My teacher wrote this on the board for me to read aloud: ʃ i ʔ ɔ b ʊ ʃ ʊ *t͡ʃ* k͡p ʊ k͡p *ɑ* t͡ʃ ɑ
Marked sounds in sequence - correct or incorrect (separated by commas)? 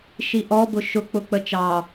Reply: incorrect, incorrect